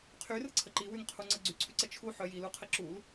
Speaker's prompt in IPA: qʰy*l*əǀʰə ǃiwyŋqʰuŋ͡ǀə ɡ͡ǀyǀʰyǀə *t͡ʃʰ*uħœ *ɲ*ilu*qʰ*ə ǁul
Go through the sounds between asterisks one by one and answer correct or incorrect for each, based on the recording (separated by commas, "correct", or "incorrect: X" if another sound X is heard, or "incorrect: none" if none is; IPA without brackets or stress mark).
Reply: incorrect: r, correct, incorrect: j, correct